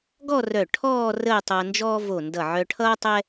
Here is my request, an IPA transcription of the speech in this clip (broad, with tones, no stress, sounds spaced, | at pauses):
ɡ ɔ˥˧ r œ˧˩ ʈʰ ɔː˥˧ r əː˥˧ tˤ ʌː˧ n d͡ʒ ɔː˥ v o˧˩ n d ʌ˧˩ ʕ œ˧ ʈʰ ʌː˥ tˤ ɛ˥